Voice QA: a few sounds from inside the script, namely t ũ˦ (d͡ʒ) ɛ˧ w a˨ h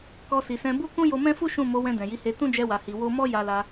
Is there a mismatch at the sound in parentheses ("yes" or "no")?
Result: no